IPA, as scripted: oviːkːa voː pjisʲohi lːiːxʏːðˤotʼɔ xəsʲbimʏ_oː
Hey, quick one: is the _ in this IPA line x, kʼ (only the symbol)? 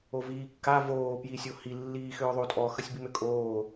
kʼ